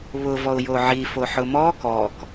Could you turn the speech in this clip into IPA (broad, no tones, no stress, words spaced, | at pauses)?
βʊ vɔʊ̯joʕi foħʊmɔ kɔk